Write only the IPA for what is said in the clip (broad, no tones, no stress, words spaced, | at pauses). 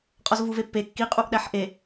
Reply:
qʼɒzvuvepːe kːi qʼuʔɗæħʔe